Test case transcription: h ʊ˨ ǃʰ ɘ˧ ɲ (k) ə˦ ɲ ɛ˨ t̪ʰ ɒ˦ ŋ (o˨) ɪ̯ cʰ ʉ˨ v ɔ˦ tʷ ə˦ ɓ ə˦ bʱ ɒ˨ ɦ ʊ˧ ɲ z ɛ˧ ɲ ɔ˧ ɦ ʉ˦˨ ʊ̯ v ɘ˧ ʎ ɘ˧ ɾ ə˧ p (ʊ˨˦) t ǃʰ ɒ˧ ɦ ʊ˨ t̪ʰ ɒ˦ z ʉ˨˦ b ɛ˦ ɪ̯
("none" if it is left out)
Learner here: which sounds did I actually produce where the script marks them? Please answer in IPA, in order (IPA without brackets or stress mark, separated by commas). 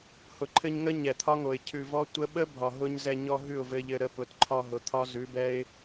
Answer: ŋ, o˨, ʊ˨˦